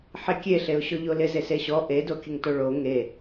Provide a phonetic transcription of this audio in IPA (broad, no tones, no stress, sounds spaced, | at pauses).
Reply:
ħ e kʲ e ɬ e ʊ̯ ɕ ɔ ʎ o l ɪ z e s e ɕ ɔ ʔ e d o kʲ ə ŋ t o ɭ o ŋ e